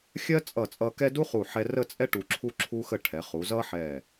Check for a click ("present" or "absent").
present